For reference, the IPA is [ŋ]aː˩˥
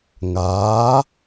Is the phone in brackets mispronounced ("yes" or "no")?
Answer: no